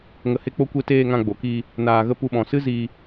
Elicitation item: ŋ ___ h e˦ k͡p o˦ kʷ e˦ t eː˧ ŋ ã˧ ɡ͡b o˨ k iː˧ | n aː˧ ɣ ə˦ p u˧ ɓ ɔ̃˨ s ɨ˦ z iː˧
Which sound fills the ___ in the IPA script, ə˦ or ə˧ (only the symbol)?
ə˧